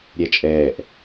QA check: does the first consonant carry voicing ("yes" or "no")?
yes